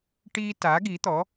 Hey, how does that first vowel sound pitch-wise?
high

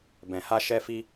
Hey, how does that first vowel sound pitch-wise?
low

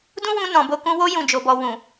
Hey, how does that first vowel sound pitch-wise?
high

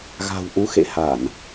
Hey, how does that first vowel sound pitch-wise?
low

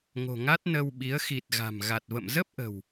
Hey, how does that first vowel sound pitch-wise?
low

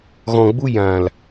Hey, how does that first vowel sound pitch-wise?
low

